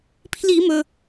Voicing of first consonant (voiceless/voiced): voiceless